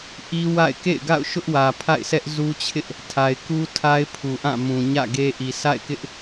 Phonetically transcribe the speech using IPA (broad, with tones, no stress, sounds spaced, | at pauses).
ʔ i˦ w a̰˦˨ ɪ̯ k ḛ˦˨ ɪ̯ ɡ a̰˦˨ ʊ̯ ʃ ʊ˦ ʔ w ä˨ pʰ a̰˦˨ ɪ̯ sʰ ɛ˦ ʔ z u˦ t͡ɕʰ ɪ˦ ʔ | tʰ a˨ ɪ̯ k u˦ tʰ a˦ ɪ̯ pʰ u˨ ʔ ã˦˨ m ũ˨ ɲ ä̰˦˨ ɡ e˦ ʔ i˨ s a̰˦˨ ɪ̯ k ɪ˦ ʔ